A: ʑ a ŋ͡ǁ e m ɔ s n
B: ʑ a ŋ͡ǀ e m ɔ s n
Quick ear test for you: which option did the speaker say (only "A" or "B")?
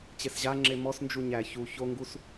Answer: A